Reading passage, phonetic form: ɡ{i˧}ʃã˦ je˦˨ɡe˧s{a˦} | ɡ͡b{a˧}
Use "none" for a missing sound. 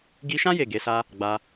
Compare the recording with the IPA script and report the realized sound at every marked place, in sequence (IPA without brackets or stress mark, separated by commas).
i˧, a˦, a˧